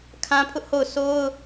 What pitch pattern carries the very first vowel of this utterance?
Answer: high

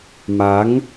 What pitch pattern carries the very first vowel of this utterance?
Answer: rising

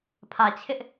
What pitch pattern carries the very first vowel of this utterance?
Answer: low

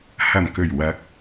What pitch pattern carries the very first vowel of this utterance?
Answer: low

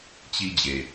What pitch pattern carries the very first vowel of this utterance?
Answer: high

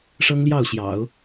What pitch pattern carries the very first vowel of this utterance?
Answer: high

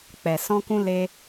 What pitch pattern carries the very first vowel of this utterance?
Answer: low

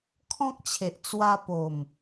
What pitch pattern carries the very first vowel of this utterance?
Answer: high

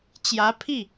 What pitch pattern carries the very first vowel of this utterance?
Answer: rising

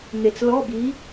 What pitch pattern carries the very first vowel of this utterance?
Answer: low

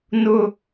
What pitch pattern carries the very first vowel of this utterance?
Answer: high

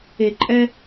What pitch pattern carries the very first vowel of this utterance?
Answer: low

